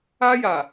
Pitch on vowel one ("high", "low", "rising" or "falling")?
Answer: high